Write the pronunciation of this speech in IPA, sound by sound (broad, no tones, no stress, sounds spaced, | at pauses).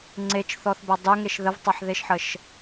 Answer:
ŋ͡ǀ e t͡ʃ θ ɔ θ b a dˤ ø ŋ e ʃ ð ə v tˤ a ħ ð e ʃ ħ ə ʃ